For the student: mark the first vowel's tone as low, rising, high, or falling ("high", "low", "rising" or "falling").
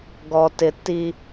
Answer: low